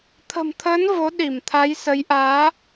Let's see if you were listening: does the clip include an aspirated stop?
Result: yes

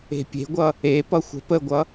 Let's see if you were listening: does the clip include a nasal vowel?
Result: no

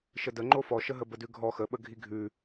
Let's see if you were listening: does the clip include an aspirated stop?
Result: no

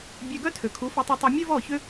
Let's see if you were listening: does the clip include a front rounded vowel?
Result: yes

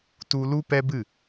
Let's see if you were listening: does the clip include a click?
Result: no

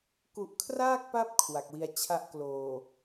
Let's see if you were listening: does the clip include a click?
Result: no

